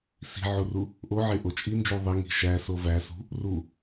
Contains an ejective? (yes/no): yes